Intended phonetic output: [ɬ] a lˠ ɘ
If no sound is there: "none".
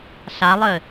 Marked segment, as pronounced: ɬ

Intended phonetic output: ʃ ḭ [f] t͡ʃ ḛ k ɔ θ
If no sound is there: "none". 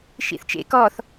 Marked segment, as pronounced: θ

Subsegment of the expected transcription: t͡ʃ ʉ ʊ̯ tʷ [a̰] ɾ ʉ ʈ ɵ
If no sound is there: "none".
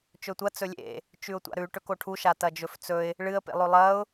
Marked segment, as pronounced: a̰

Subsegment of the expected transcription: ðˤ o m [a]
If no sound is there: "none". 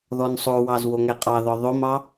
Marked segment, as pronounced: ɑ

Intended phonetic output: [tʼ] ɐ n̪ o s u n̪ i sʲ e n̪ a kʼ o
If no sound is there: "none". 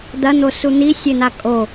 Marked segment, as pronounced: d̪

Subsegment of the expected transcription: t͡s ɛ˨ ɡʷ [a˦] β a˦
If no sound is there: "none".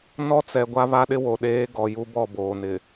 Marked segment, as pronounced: a˦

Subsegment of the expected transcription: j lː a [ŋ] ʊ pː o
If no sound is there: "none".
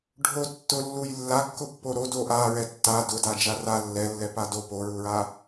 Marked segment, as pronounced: kː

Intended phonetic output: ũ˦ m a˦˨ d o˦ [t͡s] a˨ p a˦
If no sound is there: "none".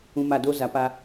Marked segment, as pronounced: z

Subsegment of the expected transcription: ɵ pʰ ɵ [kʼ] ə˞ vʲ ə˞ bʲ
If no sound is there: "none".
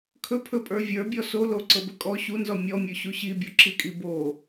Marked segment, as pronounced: pʼ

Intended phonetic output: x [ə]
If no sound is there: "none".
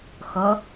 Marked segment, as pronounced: ʌ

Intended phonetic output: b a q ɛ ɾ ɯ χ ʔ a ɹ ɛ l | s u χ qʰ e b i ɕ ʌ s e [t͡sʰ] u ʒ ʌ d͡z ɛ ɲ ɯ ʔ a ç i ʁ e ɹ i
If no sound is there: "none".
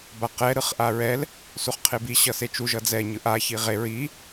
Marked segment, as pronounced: t͡ʃ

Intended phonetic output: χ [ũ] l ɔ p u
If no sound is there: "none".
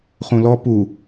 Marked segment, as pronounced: ũ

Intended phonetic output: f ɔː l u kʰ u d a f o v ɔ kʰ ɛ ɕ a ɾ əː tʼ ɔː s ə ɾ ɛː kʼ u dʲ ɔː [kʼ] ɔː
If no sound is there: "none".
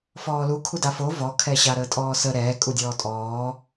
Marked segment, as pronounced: tʼ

